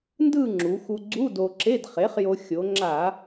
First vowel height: high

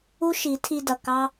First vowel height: high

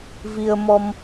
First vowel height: high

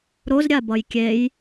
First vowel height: mid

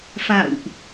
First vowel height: low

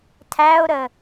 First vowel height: low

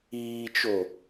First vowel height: high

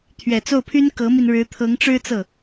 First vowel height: mid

